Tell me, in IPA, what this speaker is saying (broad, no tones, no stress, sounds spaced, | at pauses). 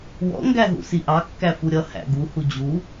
w ɔ̰ ŋ ɡ æ ɦ ṵ s i ʔ ɑ kː æ f u ɾʲ ʌ h æ̰ ɡ u h u d͡ʑ u